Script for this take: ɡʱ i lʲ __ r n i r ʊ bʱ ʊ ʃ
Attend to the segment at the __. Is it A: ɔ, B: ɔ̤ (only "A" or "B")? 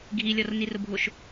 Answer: A